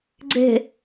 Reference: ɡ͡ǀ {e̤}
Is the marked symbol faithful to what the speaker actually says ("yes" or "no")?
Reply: yes